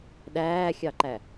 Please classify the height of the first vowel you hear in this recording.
low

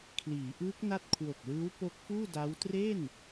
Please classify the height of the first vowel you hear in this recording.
high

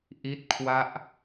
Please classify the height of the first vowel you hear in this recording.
high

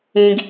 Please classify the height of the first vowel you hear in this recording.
high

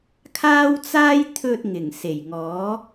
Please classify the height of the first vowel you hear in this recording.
low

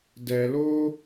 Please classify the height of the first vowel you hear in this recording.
mid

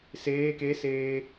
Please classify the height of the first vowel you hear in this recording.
mid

